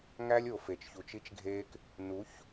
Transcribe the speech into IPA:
ŋæ˦lʲo˨fe˨t͡ʃçu˨t͡ʃ i˦t͡ʃɡʱeː˦k | nu˨˦ç

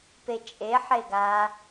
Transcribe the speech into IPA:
pet͡ʃʼe ħeɡa

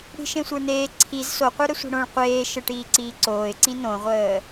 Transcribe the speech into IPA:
ɽi̤ʃẽsʷə˞neː ǀʰiz soqʷə˞ ɾəsʷi̤ɽõɭ qʷeː ʃəʈiːǀiː ǀoːɪ̯ǀĩ nõʁʷəː

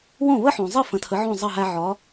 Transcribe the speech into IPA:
wõ˥˩βə˥ħõ˩zˤɨ˥˩ fə̃˩˥ tʰə˩˥ʕõ˥˩ zˤʌ˥˩ɦæ˧ ʕɒ˩˥

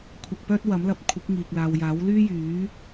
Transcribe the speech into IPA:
kʷʰɐ˧k̚pœː˥t̚ wɐ˨˥mlɐ˨˥p̚kʷʰɪ˨˥k̚ŋiː˨k̚ laː˨wjaː˨˥wlyː˥jyː˨˥

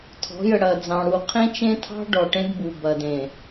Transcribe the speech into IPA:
tʰɔ̤˨˦jə˨ɽɐ˨d͡zɑ̃˨ ɽu˨qʰẽ˦t͡ʃẽ˦tʰɑ̤˦ ɖɔ˨ʈẽ˦dbu˨ bɐ˨d ẽ˨

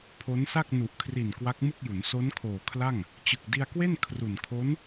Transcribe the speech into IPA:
pʰo˦˥nsa˥˩k̚ nu˨˩ʔkʰri˨˩n kwa˦˥k̚mɯ˥˩k̚ju˩˦n so˦˥nkʰoː˨˩ kʰla˥˩ŋ | t͡ɕɯ˨˩k̚di˧a̯kwe˥˩n kʰru˨˩n kʰo˦˥n

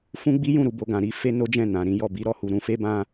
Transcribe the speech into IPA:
fũ˦ɡ͡bi˦jũ˦˨ ɾu˧bo˧ɡã˨ɾi˨˦ fe˦no˦d͡ʒɛ̃˦˨nã˨ ɾĩ˨˦jɔ˦˨ bi˨˦ɾɔ˦˨hu˨ ɾũ˧fe˦bã˦

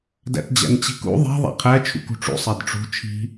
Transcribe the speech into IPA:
dæ̰td͡ʑæ̰nt͡ɕi̤kṵ ðˤi̤ ðˤæ̰qʰæ t͡ʃʰṵkṳʈ͡ʂṵ sˤedʈ͡ʂṳ t͡ʃʰi̤

